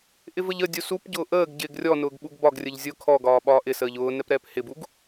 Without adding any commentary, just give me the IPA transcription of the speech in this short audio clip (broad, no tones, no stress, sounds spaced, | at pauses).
ʔ ɪ v ə ʎ ə dʲ u s u p ɟ ʊː ʔ əː ɡ ɟ ɪː ɡ rʲ ɔ n ʊː ɡ ɓ u ɡ b ɒ ɡ rʲ ə ʎ zʲ ʊ kʰ ɔ ɡ ɒː ɓ ɒː ʔ ɪ s əː ʎ ʊː n ɛ p ɾ ɛː p h ɪ b u ɡ